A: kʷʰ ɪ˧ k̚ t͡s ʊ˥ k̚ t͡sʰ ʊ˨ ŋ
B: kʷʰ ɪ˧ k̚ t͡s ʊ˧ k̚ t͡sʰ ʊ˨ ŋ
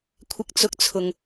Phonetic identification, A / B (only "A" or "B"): B